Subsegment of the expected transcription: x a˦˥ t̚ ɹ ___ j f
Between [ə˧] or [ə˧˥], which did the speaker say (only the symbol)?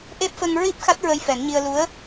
ə˧